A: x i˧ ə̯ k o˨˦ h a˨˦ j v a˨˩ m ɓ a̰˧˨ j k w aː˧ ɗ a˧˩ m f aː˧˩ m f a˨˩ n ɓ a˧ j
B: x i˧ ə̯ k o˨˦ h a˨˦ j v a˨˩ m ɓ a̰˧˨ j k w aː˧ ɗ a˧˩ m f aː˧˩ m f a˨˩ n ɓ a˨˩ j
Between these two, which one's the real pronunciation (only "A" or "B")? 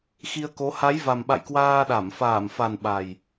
B